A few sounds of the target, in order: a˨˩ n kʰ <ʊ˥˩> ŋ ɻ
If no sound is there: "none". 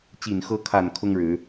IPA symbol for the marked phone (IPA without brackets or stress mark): ʊ˥